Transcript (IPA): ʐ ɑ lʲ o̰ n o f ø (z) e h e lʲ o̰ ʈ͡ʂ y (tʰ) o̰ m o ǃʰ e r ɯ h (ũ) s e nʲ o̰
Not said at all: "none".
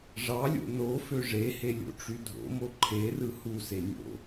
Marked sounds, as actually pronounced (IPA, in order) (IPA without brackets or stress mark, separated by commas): ʐ, dʱ, u